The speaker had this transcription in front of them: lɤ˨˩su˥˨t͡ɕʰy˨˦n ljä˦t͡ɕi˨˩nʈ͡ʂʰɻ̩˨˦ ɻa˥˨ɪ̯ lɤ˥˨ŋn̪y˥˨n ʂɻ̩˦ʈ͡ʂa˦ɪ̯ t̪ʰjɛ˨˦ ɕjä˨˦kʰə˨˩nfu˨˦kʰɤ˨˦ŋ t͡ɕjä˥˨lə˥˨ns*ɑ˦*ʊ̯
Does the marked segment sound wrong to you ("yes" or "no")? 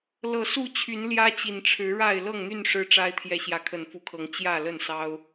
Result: no